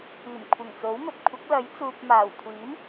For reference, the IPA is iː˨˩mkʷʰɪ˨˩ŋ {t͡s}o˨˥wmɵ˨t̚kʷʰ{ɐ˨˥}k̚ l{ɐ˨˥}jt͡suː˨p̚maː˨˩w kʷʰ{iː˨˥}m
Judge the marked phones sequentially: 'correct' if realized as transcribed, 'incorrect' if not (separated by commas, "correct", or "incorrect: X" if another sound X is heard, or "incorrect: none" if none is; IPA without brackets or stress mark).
correct, correct, correct, correct